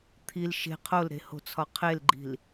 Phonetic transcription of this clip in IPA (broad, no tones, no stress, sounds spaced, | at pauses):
t̪ʰ i l ʃ e̤ qʰ o l ɾ e̤ h o̤ t͡sʰ ɒ qʰ e l ɡ͡ǃ i̤ l